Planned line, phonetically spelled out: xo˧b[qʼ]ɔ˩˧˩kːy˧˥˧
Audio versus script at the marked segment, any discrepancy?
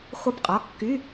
no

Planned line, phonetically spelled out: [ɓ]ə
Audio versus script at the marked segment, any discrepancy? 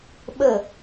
no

